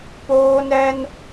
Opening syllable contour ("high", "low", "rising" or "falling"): high